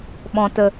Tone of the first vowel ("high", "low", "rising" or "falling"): low